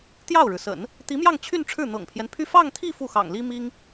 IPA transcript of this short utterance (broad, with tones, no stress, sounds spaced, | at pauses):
t̪ j ɑ˥˩ ʊ̯ ɻ ɻ̩˩ s ə̰˨˩˦ n | t̪ i˧˥ m j ɑ˥˧ ŋ t͡ɕʰ y˥˧ n ʈ͡ʂʰ ɻ̩˥˩ n̪ ɤ̰˨˩ ŋ pʰ j ɛ˦ n pʰ y˥˧ f ɑ˥˧ ŋ t̪ʰ i˥˧ f u˥˩ x ɑ̰˨˩ ŋ l i˥ m i˥ ŋ